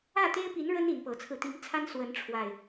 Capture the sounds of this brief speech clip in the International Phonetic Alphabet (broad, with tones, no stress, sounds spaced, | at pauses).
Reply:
ä˥˨ t̪ e˦ ɪ̯ p i˨˦ n ɻ ə˦ n i˨˦ n p ɤ˨˦ t͡sʰ ɹ̩˧ t̪ i˨˦ ŋ t͡sʰ a˦ n s w ə˨˦ n ʈ͡ʂʰ w a˨˩ ɪ̯